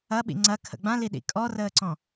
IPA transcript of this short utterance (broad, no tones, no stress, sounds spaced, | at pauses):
ɐ ɓ ḭ ŋ͡ǀ ɐ kʰ ə̰ ɡ͡b ã l i ɗ ḭ kʼ ɔ r əː ǀ ɔ̃